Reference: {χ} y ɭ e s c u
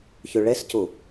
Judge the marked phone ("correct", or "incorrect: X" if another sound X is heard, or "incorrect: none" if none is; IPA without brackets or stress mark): incorrect: ç